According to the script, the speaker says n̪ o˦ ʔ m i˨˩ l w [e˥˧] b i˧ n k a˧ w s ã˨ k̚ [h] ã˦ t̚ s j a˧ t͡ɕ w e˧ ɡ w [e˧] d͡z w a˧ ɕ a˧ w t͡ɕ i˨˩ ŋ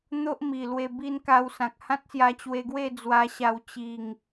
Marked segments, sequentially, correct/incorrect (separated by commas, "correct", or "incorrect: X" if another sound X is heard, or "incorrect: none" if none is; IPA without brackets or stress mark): incorrect: e˧, correct, incorrect: e˥˧